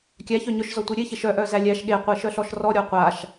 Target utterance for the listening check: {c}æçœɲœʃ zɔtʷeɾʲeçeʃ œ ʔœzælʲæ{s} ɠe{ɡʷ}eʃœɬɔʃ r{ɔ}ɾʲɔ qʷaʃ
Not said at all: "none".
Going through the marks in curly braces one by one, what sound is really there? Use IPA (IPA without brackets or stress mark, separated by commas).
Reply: kʲ, ʃ, qʷ, ɔ